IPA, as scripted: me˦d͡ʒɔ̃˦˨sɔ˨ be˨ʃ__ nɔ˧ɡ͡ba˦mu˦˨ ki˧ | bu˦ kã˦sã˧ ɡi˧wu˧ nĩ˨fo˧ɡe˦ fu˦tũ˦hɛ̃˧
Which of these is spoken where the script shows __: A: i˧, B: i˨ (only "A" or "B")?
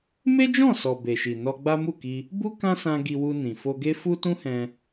B